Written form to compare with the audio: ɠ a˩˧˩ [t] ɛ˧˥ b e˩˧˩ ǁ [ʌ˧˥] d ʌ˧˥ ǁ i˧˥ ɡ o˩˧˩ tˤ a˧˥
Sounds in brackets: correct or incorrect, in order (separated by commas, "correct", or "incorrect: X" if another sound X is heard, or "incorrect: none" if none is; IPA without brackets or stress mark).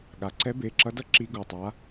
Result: incorrect: ǀ, correct